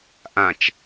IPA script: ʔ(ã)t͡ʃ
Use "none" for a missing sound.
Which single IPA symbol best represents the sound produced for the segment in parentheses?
ã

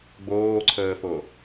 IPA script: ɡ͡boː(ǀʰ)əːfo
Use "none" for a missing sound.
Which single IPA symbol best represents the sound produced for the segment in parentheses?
ǀʰ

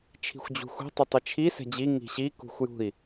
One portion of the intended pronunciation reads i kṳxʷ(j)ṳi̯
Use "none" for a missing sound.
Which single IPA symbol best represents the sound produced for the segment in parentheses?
j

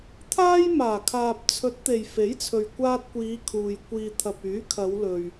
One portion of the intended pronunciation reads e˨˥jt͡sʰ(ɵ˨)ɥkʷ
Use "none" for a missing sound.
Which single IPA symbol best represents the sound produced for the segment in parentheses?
ɵ˨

